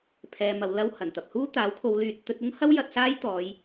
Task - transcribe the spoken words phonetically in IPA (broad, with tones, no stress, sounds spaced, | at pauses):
pʰ ɛː˧ m ɐ˧ w l ɐ˥ w h ɐ˨˩ n t̪ ɐ˨ p̚ h uː˥ t̪ aː˨˥ w kʰ o˨˧ w l yː˨ t̚ t̪ ɵ˧ t̚ ʊ˥ ŋ h ɐ˥ w j ɐ˧ t̚ s aː˥ j t̪ ɔː˨˧ j